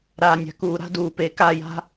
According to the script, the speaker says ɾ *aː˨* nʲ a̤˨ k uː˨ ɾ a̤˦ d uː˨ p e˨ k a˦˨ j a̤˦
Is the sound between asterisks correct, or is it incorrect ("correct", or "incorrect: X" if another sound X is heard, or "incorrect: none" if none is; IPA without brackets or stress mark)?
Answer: correct